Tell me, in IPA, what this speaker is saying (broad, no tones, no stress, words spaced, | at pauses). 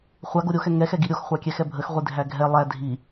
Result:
χʷaɡo ɾʲoxɛ ŋɛxɛɡi ɾʲoxχʷakʲɛxɛ bʱəxʁʷidʱæ ɡʱɛ lˠæ dʱi